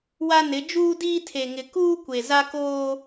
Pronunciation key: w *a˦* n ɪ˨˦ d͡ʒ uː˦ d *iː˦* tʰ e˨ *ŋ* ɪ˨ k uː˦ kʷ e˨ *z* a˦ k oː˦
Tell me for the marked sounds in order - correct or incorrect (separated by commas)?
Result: correct, correct, correct, correct